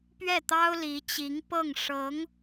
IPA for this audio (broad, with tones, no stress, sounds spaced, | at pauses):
p ɥ ɛ˥˩ t̪ ɑ˥ ʊ̯ l i˧˥ t͡ɕ i˧˥ ŋ p ɤ˥˩ ŋ ʂ ɤ˧˥ ŋ